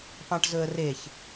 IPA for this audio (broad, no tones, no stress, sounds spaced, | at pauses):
p ɑ̃ ʈ z ɵ ə̯ r e ç